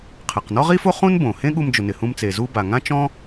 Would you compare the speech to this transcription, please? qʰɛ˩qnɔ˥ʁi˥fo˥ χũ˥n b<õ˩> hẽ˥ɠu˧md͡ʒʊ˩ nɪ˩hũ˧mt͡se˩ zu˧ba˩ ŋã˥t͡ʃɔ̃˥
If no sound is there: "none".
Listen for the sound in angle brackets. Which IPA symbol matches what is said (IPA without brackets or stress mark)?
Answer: õ˩